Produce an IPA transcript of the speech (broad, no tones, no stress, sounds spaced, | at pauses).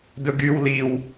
d ɵ ɡ y w l i w